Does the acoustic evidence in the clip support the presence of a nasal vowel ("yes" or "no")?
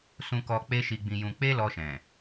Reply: yes